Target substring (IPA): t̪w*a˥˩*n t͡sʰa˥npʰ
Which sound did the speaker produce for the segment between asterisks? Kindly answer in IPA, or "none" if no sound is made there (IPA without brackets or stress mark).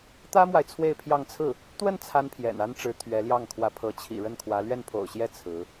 ə˥˩